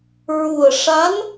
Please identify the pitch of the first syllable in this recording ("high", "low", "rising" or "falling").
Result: low